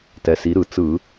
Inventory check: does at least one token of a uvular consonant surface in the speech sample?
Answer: no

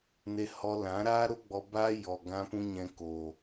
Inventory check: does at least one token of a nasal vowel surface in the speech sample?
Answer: yes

